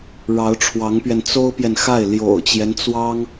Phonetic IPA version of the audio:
ɻ ɑ˧˥ ʊ̯ ʈ͡ʂʰ w ɑ˧˥ ŋ p ɥ ɛ˧ n t͡s o˥ ʊ̯ p j ɛ˨ n x a˥˩ ɪ̯ l j o̰˨˩ ʊ̯ t͡ɕ j ɛ˦ n t͡s w ɑ˥ ŋ

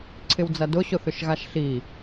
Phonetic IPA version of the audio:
ǀʰ ɪ w d͡z ɐ d ʊ ɕ ʊ θ ʏ ʃ ɣ a ʃ ɬ i

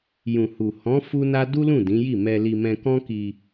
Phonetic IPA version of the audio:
j ũ˨ h u˨ h ɔ̃˨˦ f u˦ n a˦ d u˦ l ũ˦˨ d ĩ˨˦ j i˦˨ m ɛ˧ l i˧ m ɛ̃˧ k ɔ̃˦ k i˧

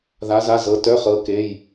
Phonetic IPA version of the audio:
ð a˧˥ z a˧˥˧ z ɤ˧˥ t œ˧˥˧ χ ɤ˧˥ k e˧˥˧ j

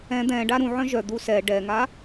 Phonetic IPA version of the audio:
ɛ̃ d̪ ɛ̃ ɖ a ɾ ũ ʕ œ̃ ʒ œ d̪ u s ɛ ɖ ɛ ŋ a

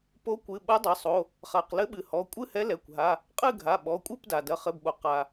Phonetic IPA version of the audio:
p o˧˥ kʷ ɨ˩˧˩ ɓ ɐ˧˥ dˤ ɘ˩˧˩ sˤ o˩˧˩ | χ a˩˧˩ q l ɘ˧˥ ɓ ɨ˩ h ɔ˩˧˩ kʷʼ ɨ˥˨ h ɛ˧˥ l ɛ˩˧˩ kʷ ɦ a˩˧˩ | qʼ ɨ˥˨ ɡʱ a˩˧˩ ɓ ɔ˩˧˩ kʷʼ ɨ˥˨ p d a˩ d ɐ˩˧˩ χ ɘ˩˧˩ b ɓ o˩ q a˩

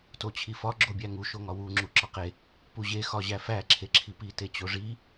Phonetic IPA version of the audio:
t o t͡ɕʰ i f ɒ ɡ͡ǁ o bʲ æ ŋ u ʃ o ŋ ɒ w u ŋ͡ǁ u ǁ ɒ q e | p u ʑ e x ɒ ʑ æ f æ ǁʰ e ǁʰ i p i t e t͡ɕ o ʐ i

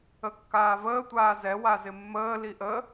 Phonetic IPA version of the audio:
ə kː aː v əː tʷ aː z ɛ w a z ɪ mː əː l i ʔ ə

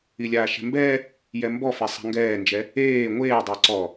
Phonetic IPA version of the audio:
i lʲ aː ʃ ɛ̤ m b ɛː | j ɛ m b ɔ f e sˤ a̤ ŋ ɡ ɛː n d͡ʒ ɛ | eː ŋʷ eː dˤ ɛ ǀ ɔ

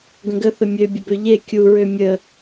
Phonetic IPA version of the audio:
ɡ ə̃ ɡ ə θ ə mʲ ø bʲ ə b ø ʎ e kʲ u ɹ ø mʲ ə

